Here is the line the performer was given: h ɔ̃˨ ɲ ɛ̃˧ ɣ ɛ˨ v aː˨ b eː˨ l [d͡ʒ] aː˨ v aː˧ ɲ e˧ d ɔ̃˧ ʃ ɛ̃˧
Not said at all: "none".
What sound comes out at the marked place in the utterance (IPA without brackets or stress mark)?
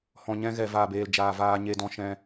d͡ʒ